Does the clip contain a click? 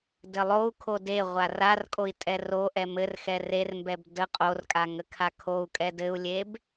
no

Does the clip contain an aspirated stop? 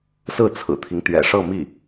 yes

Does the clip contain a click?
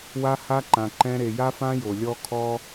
yes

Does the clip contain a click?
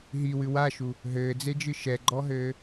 yes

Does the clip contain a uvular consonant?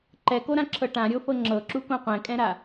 yes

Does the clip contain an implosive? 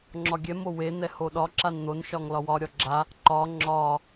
yes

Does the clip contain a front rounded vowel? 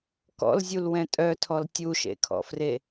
yes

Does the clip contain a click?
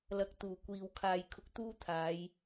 no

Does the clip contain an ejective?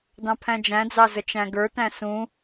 no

